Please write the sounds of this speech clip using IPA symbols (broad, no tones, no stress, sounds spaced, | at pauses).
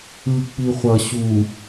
ɯ k͡p i χʷ ʌ ɕ u